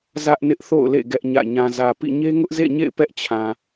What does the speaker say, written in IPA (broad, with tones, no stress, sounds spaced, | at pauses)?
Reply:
z ä˦ ʔ n ɪ˦ ʔ θ o̰˦˨ ʊ̯ l ḛ˦˨ ɡ ɛ˦ ʔ ɲ ä̰˦˨ ɲ ã˨ z ä˨ p ḭ˦˨ ɲ e˦ ŋ ʊ˦ ʔ z ḛ˦˨ ɲ ḛ˦˨ ɪ̯ p ɛ˦ ʔ t͡ɕʰ ã˨